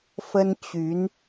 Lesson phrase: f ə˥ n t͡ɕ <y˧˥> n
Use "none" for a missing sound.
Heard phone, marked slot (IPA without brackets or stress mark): y˧˥